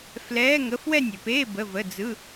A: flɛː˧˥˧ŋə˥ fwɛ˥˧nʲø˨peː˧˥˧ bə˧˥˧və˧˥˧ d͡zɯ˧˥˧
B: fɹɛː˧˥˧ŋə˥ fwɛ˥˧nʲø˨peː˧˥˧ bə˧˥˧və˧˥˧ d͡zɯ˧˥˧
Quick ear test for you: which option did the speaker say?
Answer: A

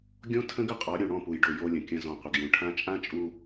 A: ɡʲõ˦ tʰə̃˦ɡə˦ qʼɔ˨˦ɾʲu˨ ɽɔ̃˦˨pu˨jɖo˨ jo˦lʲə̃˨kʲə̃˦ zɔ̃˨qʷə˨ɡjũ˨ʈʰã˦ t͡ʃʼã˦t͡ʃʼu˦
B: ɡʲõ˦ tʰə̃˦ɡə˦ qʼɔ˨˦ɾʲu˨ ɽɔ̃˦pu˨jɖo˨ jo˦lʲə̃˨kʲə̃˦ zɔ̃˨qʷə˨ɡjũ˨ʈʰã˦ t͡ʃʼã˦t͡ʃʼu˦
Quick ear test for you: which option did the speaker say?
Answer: A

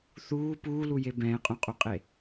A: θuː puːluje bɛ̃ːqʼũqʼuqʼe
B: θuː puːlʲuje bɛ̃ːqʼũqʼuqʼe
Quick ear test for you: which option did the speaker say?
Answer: A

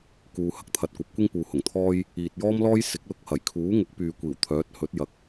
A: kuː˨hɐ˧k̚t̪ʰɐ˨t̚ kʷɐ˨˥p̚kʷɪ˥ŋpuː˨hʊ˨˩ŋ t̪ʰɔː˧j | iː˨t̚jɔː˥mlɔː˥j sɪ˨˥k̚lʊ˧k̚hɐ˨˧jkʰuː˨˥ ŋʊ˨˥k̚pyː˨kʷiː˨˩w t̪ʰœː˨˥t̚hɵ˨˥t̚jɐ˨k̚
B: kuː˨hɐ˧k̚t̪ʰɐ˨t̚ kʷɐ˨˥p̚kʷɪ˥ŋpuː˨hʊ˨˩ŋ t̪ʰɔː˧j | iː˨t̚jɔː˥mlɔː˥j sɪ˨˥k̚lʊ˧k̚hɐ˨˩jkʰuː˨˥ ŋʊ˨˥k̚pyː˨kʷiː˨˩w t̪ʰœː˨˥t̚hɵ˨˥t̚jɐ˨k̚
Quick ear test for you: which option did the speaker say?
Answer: B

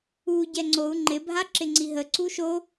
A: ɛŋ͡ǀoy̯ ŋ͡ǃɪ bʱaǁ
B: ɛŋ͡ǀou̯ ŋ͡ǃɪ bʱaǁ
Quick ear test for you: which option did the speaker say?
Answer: B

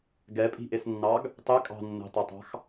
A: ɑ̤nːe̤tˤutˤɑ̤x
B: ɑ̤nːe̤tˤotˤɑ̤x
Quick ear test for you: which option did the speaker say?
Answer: B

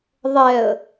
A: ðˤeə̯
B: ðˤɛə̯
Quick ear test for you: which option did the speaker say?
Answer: B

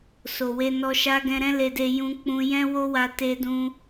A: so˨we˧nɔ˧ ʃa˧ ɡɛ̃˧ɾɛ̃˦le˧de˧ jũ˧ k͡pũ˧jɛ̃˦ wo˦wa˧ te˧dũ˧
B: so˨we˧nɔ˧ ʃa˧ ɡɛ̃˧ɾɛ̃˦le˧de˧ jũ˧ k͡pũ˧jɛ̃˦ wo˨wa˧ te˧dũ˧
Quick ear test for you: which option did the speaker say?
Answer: A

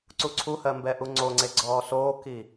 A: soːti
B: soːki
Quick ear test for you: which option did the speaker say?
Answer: B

